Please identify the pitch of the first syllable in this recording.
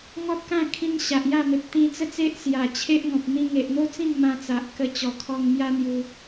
high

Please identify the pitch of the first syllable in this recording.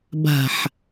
low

